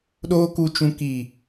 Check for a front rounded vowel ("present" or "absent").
absent